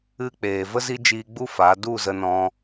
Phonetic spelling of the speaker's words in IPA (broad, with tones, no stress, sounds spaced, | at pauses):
ɨ˧ k͡p eː˨ v ə˦ z i˦ d͡ʒ iː˧ ɡ͡b u˦ f a˨˦ d u˦˨ z ə˧ n ɔ̃˧